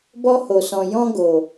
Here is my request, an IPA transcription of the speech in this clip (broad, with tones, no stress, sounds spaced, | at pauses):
b ɔ˦ h o˨ s ɔ̃˨ j ɔ̃˦ ɡ o˨